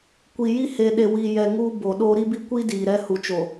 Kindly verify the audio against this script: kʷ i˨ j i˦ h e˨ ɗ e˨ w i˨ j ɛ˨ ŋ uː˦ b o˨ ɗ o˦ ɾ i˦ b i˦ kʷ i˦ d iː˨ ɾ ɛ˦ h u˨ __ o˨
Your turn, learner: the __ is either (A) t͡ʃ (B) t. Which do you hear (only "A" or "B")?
A